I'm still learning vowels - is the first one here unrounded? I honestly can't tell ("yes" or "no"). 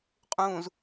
no